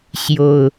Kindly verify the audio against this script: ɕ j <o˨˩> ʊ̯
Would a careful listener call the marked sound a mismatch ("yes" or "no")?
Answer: no